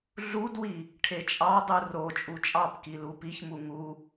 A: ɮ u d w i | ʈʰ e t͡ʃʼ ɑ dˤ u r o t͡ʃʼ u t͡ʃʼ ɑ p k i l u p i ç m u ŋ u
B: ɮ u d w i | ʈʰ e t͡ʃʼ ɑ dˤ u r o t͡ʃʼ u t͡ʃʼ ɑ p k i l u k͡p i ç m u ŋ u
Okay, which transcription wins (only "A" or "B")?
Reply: A